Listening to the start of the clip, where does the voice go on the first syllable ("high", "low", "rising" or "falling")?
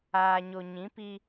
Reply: low